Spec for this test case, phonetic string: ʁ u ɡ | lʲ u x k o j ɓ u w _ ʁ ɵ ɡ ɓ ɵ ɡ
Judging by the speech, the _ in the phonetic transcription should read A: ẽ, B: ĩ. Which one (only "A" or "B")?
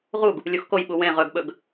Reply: A